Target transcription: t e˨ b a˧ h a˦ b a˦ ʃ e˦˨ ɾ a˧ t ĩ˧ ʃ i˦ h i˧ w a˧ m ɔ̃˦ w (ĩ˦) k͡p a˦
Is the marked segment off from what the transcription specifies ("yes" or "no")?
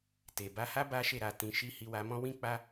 no